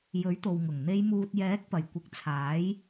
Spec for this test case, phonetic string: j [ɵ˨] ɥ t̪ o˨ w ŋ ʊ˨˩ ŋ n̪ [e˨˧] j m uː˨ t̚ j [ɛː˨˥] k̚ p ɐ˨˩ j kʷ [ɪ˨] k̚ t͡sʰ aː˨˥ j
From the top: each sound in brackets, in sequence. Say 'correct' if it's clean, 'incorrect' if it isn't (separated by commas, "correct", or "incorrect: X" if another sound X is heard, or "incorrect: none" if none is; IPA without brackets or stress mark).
incorrect: ɵ˨˥, correct, correct, incorrect: ɪ˨˥